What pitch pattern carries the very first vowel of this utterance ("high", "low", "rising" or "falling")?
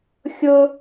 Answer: high